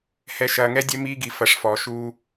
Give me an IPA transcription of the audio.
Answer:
h ɛ˨ ʃ ɐː˨ ŋ ɛ˦ dʲ ɛ˦ m iː˦ ɡ i˨ f ɐ˨˦ ʂ f ɔː˨ ʃ uː˦

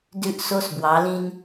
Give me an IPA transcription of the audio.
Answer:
d ʉ˦ ʔ s o˦ s b w ɑ˨˦ l ĩ˦ n

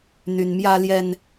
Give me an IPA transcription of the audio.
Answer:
n̪ y˦ n m j ä˦ l j ɛ˦ n

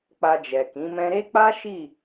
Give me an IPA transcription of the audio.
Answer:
k͡p a˧ d͡ʒ ɛ˨ k ĩ˨˦ m ɛ̃˦ ɾ e˦ k͡p a˦ ʃ i˦˨

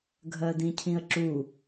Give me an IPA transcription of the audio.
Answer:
ɡʱ ɜ d ĩ cʰ ĩ ə̯ ǁ u

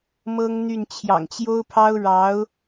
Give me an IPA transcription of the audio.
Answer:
m ɤ˥ ŋ n̪ y˥˩ n t͡ɕʰ j ɑ̰˨˩ ŋ t͡ɕ j o˥ ʊ̯ pʰ ɑ˥ ʊ̯ ɻ ɑ˧˥ ʊ̯

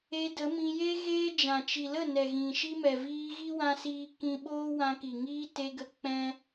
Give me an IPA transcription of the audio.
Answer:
e˧ d ə˨˦ m ĩ˧ j e˦ ɣ eː˦ d͡ʒ ã˨ t͡ʃ i˨ l ə˦˨ n ɛ˨ ɣ ĩ˨ ʃ i˦ m ɛ˨ v iː˧ ɣ i˦ w ã˧ s iː˧ k ĩ˦ ɓ oː˦ w ã˧ k i˨ ŋ iː˦ t e˧ ɡ ə˧ k͡p ɛ̃˦

